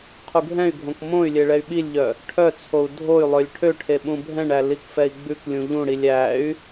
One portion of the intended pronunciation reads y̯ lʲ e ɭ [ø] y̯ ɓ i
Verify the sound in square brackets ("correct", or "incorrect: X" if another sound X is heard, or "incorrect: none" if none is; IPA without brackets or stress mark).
incorrect: ɛ